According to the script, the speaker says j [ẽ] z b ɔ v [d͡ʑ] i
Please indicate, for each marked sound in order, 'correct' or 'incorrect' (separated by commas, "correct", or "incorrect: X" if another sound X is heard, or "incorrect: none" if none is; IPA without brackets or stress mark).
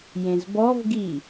correct, incorrect: ɡ